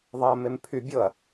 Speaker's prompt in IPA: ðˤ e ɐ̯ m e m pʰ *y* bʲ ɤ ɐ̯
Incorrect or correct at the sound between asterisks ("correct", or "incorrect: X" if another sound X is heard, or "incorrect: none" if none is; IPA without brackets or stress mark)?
correct